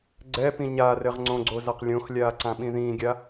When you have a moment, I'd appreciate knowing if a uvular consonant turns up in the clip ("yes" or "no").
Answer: yes